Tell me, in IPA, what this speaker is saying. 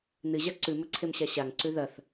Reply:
nɨʑa ǀʉmɵǀʰemɕa ɕaŋǀʉ ðɐθ

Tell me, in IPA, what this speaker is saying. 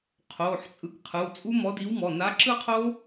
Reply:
qʰo˩˧˩ħ t͡sʼɯ˨˥kqʰɯ˩˧˩wt͡sʼu˦˥ mɔ˨˥di˨˥wmɔ˩˧˩ na˨˥ǁɯ˥˧qʰo˦˥

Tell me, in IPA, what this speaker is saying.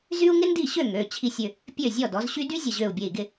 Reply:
zy˥u̯ ŋɪ˥ndi˥˩ ɕø˥˩ ŋø˩˧˩ t͡ɕʰi˧˩sʲʏ˧˩ | pʲø˥˩zʲɔ˥˩dɔ˩˥zɕy˥ dy˥zʲə˧˩ʑø˧˩u̯ bʲe˧˩i̯ɡɪ˥˩

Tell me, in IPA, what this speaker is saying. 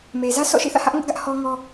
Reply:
me˨ zä˦sʰɔ̰˦˨ ʃḭ˦˨θä̰˦˨hä˦ʔ ŋʊ˦ʔɡä˦ʔ hɔ˦ŋɔ˦

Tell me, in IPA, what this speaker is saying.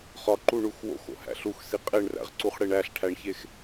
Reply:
χɒǃuɳux wo̰xo̰hæ̰ ɬuxsi qʼeɳræ̰ʁǀuχɽeɳ æɬʈʰæɳçex

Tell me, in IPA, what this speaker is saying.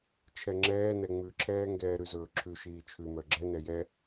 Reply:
t͡ʃʰɛŋ͡ǁɛː nɛŋ͡mʉǁʰɛːŋɡɛː ɾʉzɵːǁʰʉ ʃiːt͡ʃʰʉmœ ɡ͡ǁɛnɛ jɛ

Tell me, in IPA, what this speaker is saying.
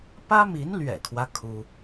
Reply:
pä˥mi˧˥nlɥɛ̰˨˩kʰwä˦ kʰu˥

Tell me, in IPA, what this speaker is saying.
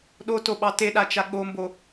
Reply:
ɗotoɓɑ teɗat͡ʃa ɠombo

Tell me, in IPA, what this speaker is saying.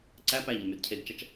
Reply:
ǀæ pæʎɐmyd cʰeɡt͡ʃɐt͡ʃ

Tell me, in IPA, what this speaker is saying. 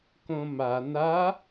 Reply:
kõma na

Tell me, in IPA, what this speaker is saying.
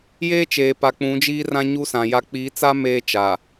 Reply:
jeː˦t͡ʃeː˨pa˨ k͡pũ˨˦d͡ʒiː˦ rã˦ɲu˦sã˨ ja˦ k͡pi˨˦t͡sa˦ meː˦ t͡ʃa˨

